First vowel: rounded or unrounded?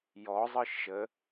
rounded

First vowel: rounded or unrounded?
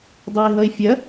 rounded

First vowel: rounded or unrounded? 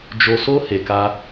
rounded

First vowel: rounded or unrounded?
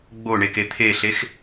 rounded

